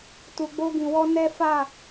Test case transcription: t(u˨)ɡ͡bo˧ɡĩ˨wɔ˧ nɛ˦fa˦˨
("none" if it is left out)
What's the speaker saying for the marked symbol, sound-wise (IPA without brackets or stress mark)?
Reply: u˨